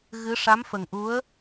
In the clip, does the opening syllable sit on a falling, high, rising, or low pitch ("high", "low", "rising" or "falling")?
rising